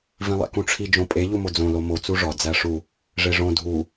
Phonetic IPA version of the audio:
vĩlˠḛkũʈ͡ʂʰi d͡ʒõpʼe ʎumod͡zõ lomo t͡suʐɒ d͡zæʂu | ʐeʐõ dʱu

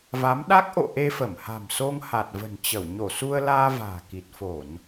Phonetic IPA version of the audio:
va˨˦mɗa˦˥k̚ ʔo̰˧˨ ʔe˧fə˧˩mha̤˨˩mso˧ŋ ha˨˩t̚və̤˨˩nt͡ɕə˧˩w ɲo˧˩su˧ə̯laː˧ va̤ː˨˩ki˨˩t̚ fo˧˩˨n

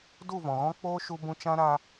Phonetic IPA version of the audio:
du˦˨vɔ̃˨ɣɔ̃˦k͡poː˦ ʃu˧bũ˧ t͡ʃã˦ɾa˦

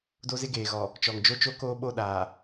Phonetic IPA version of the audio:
do˦zɪ˦ɡeː˨ɣɔ˨ | t͡ʃɔ˨ŋd͡ʒo˦t͡ʃo˦ koː˦ɓo˦˨ɗaː˨

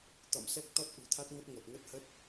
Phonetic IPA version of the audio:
t̪ɔ̰˧˨msɛ˦˥k̚t̪ɔ˦˥t̚ ʔṳ˨˩t̪ʰa˦˥t̚ŋə˦˥t̚ ŋə˨˩t̚ŋə˦˥t̚hə˦˥t̚

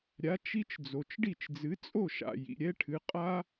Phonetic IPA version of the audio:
ɾʲa˩˥ t͡ʃi˦t͡ʃ d͡zo˩t͡ʃɖi˥˩t͡ʃd͡zɨ˩˥ t͡sʼo˥˩ʃa̰˩ jḭ˩ɾʲɛ˦ʈʰɨ˩˧ qʼa˦

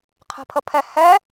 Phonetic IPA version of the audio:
qʰɛ̤pʰəpʰɛ hɛ

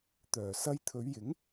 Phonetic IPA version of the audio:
t̪œː˨˩ sɐ˧jt̪ʰɵ˨˧ɥjɪ˨˥ŋ

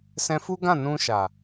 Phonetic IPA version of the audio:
sɛ̃˧fu˦ɡã˦˨nũ˧ ʃa˨

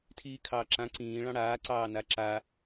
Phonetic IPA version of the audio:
tʰiːkʰɑːǁã ǀĩː ɭɑ̃ɽaːǀɑː naǁa

